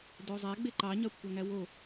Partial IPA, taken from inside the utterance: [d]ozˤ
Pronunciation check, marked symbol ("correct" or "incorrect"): correct